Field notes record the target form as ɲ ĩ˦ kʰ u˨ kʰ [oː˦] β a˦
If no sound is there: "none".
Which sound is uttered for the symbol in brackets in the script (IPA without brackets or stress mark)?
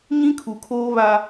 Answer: oː˦